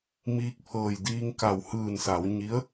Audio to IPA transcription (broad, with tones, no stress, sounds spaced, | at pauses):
m iː˧ k̚ pʰ ɤː˧˩ j d iː˧ ŋ k a˧˩ w h ɯː˧˩ n s a˩˧ w ɲ i˧˥ ə̯